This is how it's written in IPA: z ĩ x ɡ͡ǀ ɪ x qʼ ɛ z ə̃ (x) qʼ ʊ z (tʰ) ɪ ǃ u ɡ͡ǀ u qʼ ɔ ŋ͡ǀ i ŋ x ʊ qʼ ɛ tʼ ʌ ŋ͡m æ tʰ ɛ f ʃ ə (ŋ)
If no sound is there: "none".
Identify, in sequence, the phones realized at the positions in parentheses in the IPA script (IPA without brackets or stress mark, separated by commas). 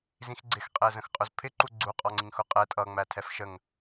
x, pʰ, ŋ